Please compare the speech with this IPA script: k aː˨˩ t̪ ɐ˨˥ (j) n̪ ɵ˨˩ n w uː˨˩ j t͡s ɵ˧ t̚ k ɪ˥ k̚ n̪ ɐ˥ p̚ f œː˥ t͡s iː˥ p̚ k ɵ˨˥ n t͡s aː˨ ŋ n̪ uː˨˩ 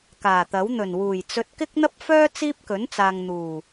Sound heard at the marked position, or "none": w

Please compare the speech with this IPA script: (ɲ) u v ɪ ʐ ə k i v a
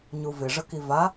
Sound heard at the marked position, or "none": ɲ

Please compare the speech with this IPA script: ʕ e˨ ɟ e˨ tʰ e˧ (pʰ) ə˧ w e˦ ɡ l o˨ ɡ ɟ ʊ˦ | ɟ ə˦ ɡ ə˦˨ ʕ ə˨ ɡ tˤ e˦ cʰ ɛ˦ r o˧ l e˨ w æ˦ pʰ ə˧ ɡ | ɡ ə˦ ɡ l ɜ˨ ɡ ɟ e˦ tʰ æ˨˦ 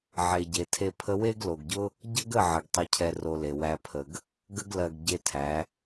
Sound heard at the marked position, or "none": pʰ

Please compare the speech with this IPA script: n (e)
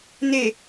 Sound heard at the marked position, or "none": e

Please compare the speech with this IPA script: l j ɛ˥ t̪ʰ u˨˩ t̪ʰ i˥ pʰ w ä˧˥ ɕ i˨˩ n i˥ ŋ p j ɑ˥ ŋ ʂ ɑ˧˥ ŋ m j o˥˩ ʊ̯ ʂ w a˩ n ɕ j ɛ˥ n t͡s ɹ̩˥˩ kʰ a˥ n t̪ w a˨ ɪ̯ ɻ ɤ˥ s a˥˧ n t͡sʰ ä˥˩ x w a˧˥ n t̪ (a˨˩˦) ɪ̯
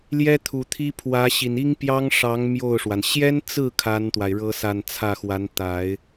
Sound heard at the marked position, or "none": a˨˩˦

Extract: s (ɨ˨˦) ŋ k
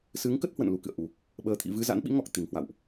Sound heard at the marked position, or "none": ɨ˨˦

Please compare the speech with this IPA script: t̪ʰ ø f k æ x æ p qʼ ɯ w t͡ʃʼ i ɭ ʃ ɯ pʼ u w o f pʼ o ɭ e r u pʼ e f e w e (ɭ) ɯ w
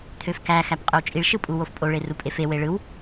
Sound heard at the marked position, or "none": ɭ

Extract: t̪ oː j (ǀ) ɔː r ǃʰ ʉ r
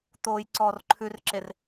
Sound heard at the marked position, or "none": ǀ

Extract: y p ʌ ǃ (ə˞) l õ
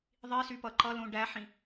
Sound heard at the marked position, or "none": ʌ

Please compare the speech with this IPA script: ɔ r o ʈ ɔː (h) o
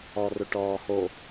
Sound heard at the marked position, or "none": h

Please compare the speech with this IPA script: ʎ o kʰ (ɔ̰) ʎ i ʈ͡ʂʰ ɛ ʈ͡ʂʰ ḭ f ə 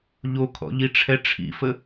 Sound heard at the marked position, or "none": ɔ̰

